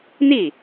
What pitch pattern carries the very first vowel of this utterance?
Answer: falling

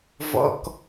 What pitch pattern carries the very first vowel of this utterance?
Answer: low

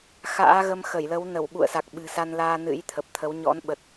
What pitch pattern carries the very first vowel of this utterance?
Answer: rising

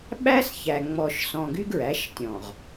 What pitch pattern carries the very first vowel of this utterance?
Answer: high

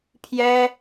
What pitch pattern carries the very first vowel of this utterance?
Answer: high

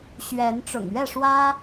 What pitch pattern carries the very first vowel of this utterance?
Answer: rising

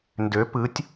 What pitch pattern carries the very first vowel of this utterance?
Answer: rising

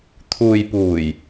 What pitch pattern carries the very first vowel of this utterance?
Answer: low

